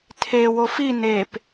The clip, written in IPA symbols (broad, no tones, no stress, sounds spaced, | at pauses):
tʰ e w o f i n e p